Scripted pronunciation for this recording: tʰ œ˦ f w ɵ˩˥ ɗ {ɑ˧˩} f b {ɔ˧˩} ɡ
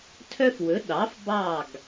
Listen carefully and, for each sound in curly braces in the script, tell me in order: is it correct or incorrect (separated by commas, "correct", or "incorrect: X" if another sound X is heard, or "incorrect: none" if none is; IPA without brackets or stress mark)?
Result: incorrect: ɑ˩˥, incorrect: ɑ˧˩